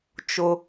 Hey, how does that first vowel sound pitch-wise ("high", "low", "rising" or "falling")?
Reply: high